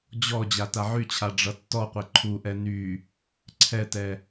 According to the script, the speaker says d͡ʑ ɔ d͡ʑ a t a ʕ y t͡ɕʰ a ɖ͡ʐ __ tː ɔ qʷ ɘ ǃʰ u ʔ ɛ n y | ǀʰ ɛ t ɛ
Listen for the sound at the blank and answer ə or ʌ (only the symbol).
ʌ